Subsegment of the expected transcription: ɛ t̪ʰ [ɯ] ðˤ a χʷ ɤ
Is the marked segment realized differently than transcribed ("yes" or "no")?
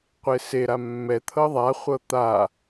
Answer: yes